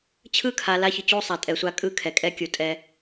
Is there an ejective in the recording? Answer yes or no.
yes